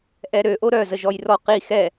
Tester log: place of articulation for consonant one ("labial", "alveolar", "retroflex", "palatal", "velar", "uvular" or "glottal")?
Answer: glottal